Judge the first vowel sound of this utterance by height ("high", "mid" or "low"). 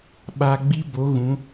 low